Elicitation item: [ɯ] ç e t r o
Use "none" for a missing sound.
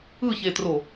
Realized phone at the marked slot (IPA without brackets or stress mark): ɯ